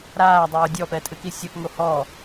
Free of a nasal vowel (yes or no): yes